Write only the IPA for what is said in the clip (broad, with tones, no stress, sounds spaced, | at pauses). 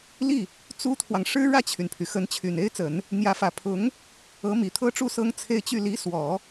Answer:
l i˥˩ | t͡s u˥ t̪ʰ w ɑ˨ ŋ ʂ ɻ̩˥ ɻ ä˥˩ t͡ɕʰ y˩ n pʰ y˩ x ə˧˥ n t͡ɕʰ y˨˩ n e˥ ɪ̯ t͡s ə˨˩˦ n | n̪ j ä˧˥ f ä˨˩ pʰ ʊ˧˥ ŋ | ɤ˧˥ m i˨˩ t̪ʰ ɤ˥ ʈ͡ʂ u˥˩ s ɤ˥ ŋ t͡sʰ e˥˧ ɪ̯ t͡ɕ y˥˩ l i˧˥ s w ɔ˨˩˦